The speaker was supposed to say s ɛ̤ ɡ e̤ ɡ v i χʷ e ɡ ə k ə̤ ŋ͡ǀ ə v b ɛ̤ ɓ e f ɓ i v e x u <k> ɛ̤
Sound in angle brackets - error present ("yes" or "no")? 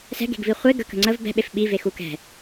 no